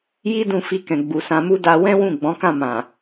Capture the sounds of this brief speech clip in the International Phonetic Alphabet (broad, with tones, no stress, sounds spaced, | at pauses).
j i˦ d ũ˧ f i˧ k ɛ̃˨ ɡ͡b u˨ s ã˧ m u˦ d a˧ w ɛ̃˦ w ũ˦˨ ɡ͡b ɔ̃˨˦ k ã˦˨ m ã˨